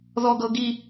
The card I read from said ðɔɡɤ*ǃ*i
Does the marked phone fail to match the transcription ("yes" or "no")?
yes